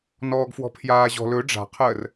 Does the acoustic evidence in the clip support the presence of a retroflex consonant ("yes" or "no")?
yes